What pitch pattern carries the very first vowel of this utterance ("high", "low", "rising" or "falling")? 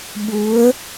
rising